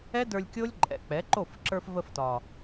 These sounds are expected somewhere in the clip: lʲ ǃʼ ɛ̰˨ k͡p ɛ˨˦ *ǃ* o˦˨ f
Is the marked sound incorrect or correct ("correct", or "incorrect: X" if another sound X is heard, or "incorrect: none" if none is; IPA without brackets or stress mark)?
correct